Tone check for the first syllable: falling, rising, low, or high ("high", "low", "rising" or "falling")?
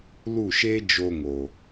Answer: falling